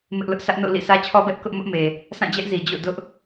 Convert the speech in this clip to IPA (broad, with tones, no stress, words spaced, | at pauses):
mɪ˦ʔlʊ˦ʔ sä˦ʔno̰˦˨lḭ˦˨ sʰä˦t͡ɕʰɔ˦bɛ˦ʔ kʊ˦ʔ mʊ˦ʔme˨ | sʰã˦˨d͡ʑɛ˦ʔ zi˨d͡ʑo̰˦˨ dʊ˦ʔ